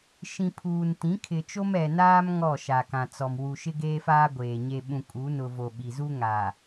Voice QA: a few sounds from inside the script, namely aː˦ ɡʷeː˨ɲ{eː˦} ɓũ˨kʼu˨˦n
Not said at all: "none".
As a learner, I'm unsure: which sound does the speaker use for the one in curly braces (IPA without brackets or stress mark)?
e˦